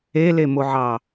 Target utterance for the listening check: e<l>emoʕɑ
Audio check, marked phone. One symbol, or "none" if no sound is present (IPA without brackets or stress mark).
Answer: l